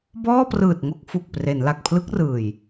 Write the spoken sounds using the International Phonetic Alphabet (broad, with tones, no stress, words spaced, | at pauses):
bɔː˥˩prɯː˨˩t̚ŋo˥˩k̚ fu˨˩k̚pre˩˦n la˨˩k̚pʰlɯ˦˥k̚rɯː˨˩j